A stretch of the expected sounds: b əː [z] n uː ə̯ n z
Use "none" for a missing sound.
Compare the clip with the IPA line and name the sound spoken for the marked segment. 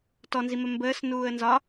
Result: s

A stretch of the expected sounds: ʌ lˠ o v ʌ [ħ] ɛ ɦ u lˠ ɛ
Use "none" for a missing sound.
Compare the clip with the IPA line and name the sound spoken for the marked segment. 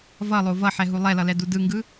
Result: ħ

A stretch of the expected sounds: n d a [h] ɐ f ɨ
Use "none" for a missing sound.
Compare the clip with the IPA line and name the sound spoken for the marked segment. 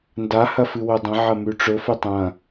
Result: h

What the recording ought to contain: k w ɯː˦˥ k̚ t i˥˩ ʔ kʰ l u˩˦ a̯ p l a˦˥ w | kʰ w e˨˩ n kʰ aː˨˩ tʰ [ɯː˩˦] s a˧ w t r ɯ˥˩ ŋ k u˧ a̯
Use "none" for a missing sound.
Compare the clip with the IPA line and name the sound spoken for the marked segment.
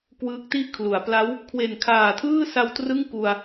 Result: ɯː˥˩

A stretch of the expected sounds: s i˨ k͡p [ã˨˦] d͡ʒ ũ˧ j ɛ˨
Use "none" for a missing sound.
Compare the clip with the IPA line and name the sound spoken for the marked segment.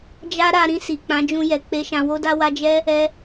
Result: ã˨˦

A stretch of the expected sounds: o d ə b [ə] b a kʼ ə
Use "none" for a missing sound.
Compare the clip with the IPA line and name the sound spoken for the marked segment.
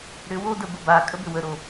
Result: ə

